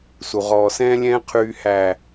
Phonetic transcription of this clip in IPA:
s u˨ ʁ ɔː˨ s ɛ̃ː˦ lʲ ɛ̃ː˦ qʰ yː˦ h æ˦˨

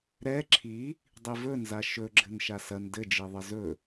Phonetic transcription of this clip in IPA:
ɾ ɛ ǁʰ i | dˤ i v ɵ n z a ʃ ɵ ɡ͡ǁ ɘ n ʃ a s ɐ n d ɘ d͡ʒ i ðˤ ɘ z ɵ

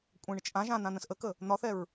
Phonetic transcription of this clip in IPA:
kʷʼ ɛ̃ ɳ ə t͡ʃ ʔ ã ʒ ãː n̪ ã n̪ ə̃ s ʔ ə k ə | n̪ ɒ θ ɛ ɹ

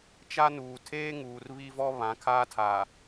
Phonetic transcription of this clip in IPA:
t͡ʃ a˦ n uː˨ tʰ eː˦ ŋ uː˨ r β i˦ v ɔ˦ β ã˨˦ kʰ aː˦ tʰ aː˨

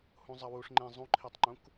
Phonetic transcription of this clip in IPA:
h ũ zˤ ɐ w u ʂ ŋ͡ǃ ẽ zˤ ũ ǃʰ i tˤ ŋ͡ǃ ũ k

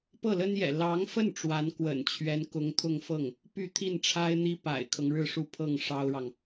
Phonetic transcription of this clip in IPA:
p ɤ˥˩ l ə˥ n j ɛ̰˨˩ l ɑ˧˥ ŋ f ə˥˩ n ʈ͡ʂ w a˧˥ n k w ə̰˨˩ n t͡ɕʰ ɥ ɛ˧˥ n k ʊ˧˥ ŋ t̪ʰ ʊ˥˧ ŋ f ɤ˥˩ ŋ | p y˥˧ t̪ʰ i˥˩ n ʈ͡ʂʰ a˥ ɪ̯ n̪ i˥ p a̰˨˩ ɪ̯ kʰ ɤ˦ ŋ ɻ ɻ̩˥˧ ʂ u˥˧ pʰ ɤ˥˩ ŋ ʂ ɑ˥ ʊ̯ ɻ ɑ˨ ŋ

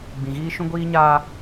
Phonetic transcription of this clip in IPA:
ɡ͡b ĩ˨ ɣ iː˦ ʃ ũ˦ ɡʷ iː˦ ɲ aː˦

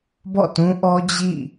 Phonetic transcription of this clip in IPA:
b ɔ̰˦˨ t ũ˦ ʔ ɔ˦ d͡ʑ ḭ˦˨

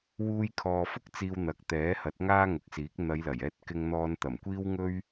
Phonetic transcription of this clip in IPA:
w uː˧ j kʰ ɔː˨ f ʊ˥ k̚ t͡s iː˧ w n̪ ɐ˨ k̚ t̪ ɛː˨˥ h ɐ˨˥ t̚ ŋ aː˥ ŋ ʊ˨˥ k̚ s iː˨˥ k̚ n̪ ɐ˨˧ j l ɐ˨˩ j ɛː˧ t̚ k ɪ˧ ŋ n̪ ɔː˧ n t̪ ɐ˨˩ m kʷ iː˥ w ŋ ɵ˥ ɥ

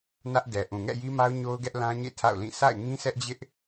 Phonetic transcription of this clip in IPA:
n ä˦ ʔ d ɛ˨ ʔ ũ˨ ŋ ɛ̰˦˨ j i˦ m a˦ ʊ̯ ɲ o˦ ʊ̯ ɡ ɛ˦ ʔ l ã˦ ɲ ḛ˦˨ tʰ a̰˦˨ ʊ̯ l ĩ˦˨ s a̰˦˨ ɪ̯ ŋ ĩ˦ s ɛ˦ ʔ d͡ʑ ɪ˦ ʔ

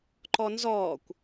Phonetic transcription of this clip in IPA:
ǃ ɔ n z ɔː kʷ

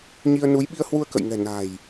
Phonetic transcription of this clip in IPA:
ɲ i˧ ə̯ n u˨˦ j ɓ i˧ ə̯ h w u˧ ə̯ k ə̰˧˨ j ŋ ɛ̤˨˩ n a̤˨˩ j

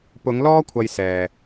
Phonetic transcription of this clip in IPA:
p ʊ˨˧ ŋ l ɔː˥ kʷʰ ɐ˨ j s ɛː˨

